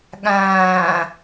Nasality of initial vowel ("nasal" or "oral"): nasal